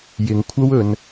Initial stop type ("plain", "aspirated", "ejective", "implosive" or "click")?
aspirated